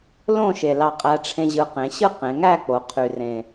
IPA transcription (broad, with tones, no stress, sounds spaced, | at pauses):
l õ˥˨ ʃ e˨˩ l ɑ˧ qʼ æ˧ ʈ͡ʂʰ ẽ˧ ʑ ɯ˨˩ q ẽ˩˧ ɕ ɯ˥˨ q ẽ˩˧ ŋ æ˥˨ k͡p o˩˧ qʰ y˨˩ r ẽ˨˩